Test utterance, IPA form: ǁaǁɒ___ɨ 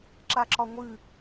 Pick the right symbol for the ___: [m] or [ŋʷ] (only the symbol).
ŋʷ